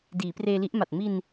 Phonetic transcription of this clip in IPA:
diː˩˦preː˧li˦˥ʔma˨˩t̚ mi˧n

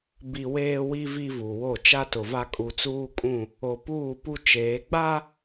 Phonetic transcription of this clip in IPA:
bi˨ weː˦wi˦ vi˦vu˨wo˦˨ t͡ʃa˦tʊ˨va˦ kʼu˨t͡suː˦kʼũ˦˨ | o˨puː˦˨pu˦ t͡ʃeː˨˦ ɡ͡ba˦

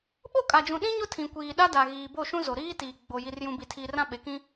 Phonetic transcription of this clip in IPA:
ɓo˦˨kʼa˨d͡ʒũ˨ ɗĩ˦ɲʊ˦tʰĩ˨ kʷiː˨ɗa˦da˨ɣiː˨ bo˦˨ʃũ˦zo˨ ɾiː˦tiː˨ ɡ͡bo˨ ji˨rjũ˨bi˨tʰi˨ rã˦ɓe˨kĩ˦

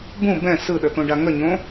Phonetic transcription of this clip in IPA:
bũ bɛ̃ sɯɗət̪õɖa ŋəɲõ

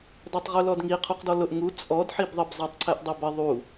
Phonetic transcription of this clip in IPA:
dɔtˤʁulɔdŋi qʰuqdɔlʊʔ ŋu t͡sʼɔd ħibðˤəb zˤætˤǀʰɛʔdˤɪbə ðˤu

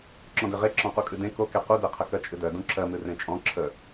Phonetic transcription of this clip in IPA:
ǁɔ̃dɪʁe ǁɔ̃qukʼɨdẽ koke qudeqʰəkɜ t͡ʃʼɨdɜ dũǁɜmɨ rẽt͡ʃʼɔ̃ ǁʰə

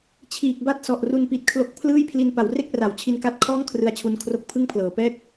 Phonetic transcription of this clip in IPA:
t͡ɕʰiː˨˩k̚ba˦˥t̚sɔ˨˩ʔ ru˧npi˨˩t̚ kʰlo˦˥k̚pʰlɯː˥˩j pʰli˧npa˩˦wre˥˩k̚ra˩˦w t͡ɕʰi˧nka˦˥t̚kʰɔː˥˩ŋ kʰrɯ˧a̯t͡ɕʰu˧n kʰro˦˥k̚pʰɯ˥˩ŋpʰlɤː˨˩ pɛː˥˩k̚

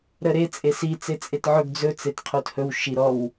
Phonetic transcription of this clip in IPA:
ɾəɾe t͡sʼesi t͡set͡sʼetʕɵɡ d͡zɵ t͡setqʰothɵw ʃiɾɔw

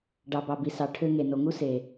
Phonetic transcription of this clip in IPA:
ɖɑ˨bɑ˨ bi˨sɑ˨ ʈʰø˧ŋe˨ no˨ŋu˦ se˨

